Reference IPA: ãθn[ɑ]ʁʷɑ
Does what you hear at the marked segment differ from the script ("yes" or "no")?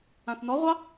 yes